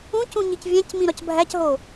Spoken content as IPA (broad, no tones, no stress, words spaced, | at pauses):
ũcũ ɲicvʲæ̃cmĩ ɾɒcbʱæcɦo